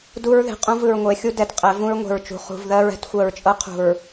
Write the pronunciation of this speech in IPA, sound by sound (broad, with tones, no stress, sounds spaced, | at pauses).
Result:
d u˦ ɹ ð e̤˨ qʼ ũ˦ v ɯ˨ ɹ ŋʷ e˨˦ xʲ u˦ d ɛ˨ t qʼ ɛ˨˦ v ũ˦ ɹ ŋʷ e̤˨ ɹ t͡ʃ ṳ˨ χ ṳ˨ v ð ɜ˦ ɹ ɛ̤˦ t xʷ ɜ˨ ɹ t͡ʃʼ ɤ˦ qʰ ṳ˨ ɹ